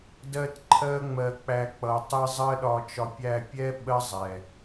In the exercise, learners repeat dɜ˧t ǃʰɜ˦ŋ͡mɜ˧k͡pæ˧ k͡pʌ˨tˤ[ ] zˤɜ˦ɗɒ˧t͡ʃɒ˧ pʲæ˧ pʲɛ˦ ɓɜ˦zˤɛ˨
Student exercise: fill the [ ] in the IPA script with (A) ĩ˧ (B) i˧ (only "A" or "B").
B